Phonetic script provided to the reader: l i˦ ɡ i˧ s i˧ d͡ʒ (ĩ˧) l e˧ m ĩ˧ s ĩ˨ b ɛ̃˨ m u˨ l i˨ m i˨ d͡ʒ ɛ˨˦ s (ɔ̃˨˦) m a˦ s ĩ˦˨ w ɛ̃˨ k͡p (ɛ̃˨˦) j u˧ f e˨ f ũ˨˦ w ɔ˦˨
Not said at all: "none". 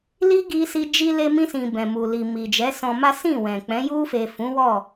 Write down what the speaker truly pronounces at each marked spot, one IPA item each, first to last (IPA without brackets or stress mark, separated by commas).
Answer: i˧, ɔ̃˧, ɛ̃˨˦